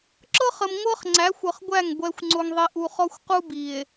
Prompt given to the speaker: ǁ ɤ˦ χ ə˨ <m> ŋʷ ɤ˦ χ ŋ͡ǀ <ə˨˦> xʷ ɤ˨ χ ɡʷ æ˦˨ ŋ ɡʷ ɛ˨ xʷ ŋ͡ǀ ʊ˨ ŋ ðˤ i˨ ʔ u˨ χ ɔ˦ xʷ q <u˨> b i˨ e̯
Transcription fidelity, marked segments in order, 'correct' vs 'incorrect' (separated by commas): correct, incorrect, incorrect